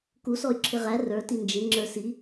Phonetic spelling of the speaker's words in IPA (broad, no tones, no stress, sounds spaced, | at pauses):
k u s ɔ y̯ ǁʰ ɪ ʁ æ r ə˞ t i n d͡ʒ ɪ ŋ͡ǁ ə˞ s i